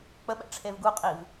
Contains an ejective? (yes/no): yes